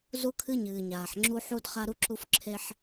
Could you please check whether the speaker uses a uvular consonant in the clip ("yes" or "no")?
yes